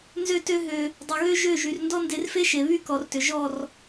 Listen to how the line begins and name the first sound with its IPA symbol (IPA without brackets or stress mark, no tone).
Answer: n